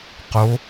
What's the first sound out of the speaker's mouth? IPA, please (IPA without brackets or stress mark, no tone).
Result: q